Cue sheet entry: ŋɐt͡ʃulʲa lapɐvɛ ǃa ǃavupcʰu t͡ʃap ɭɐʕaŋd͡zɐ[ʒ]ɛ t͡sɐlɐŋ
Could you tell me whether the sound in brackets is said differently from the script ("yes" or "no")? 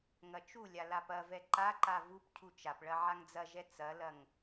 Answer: no